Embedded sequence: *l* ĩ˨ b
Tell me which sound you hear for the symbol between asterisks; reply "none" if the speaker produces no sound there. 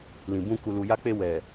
l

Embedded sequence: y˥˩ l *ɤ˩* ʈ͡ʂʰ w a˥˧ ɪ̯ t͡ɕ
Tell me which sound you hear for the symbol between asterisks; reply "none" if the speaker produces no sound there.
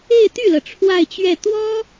ɤ˩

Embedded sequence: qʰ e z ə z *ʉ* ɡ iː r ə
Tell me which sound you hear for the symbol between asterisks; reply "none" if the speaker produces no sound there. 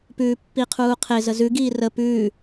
ʉ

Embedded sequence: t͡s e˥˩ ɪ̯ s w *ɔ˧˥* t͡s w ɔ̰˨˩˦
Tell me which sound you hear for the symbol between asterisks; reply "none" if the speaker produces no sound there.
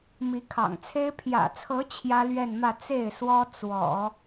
ɔ˥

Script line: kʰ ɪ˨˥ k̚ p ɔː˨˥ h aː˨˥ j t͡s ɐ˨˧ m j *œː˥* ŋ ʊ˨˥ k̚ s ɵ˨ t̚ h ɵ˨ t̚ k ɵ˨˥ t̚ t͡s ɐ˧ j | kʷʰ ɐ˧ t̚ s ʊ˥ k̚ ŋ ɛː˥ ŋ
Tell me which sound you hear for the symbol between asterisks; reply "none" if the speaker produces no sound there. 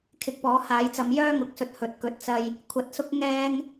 œː˥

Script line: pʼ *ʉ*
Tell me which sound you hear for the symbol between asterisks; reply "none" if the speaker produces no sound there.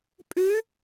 ʉ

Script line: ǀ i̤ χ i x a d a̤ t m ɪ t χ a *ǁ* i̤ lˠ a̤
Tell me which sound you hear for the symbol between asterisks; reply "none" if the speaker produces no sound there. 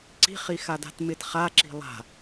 ǁ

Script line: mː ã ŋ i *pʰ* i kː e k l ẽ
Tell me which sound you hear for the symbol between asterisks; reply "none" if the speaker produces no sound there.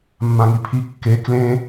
pʰ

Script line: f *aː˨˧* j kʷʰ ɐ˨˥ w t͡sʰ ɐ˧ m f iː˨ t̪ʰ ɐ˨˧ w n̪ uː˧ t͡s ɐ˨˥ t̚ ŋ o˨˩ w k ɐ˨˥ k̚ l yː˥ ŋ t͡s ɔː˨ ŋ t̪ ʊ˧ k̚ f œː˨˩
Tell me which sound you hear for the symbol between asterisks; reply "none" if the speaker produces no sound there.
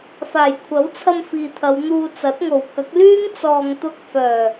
aː˨˩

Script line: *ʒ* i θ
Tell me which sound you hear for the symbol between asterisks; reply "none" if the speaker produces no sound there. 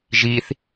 ʒ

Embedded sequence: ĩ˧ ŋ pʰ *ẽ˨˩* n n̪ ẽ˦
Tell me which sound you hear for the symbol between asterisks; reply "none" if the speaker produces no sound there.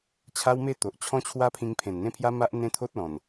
ẽ˨˩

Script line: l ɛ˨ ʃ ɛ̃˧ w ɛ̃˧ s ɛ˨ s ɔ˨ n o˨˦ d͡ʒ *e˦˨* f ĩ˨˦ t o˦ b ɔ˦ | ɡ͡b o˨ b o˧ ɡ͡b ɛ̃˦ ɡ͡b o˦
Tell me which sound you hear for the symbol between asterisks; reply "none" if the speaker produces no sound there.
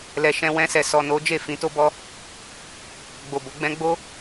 e˦˨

